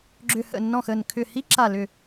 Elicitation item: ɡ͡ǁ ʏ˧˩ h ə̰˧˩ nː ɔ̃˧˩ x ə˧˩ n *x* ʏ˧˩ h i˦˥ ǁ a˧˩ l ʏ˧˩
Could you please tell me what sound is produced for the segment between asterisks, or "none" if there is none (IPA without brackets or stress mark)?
kʰ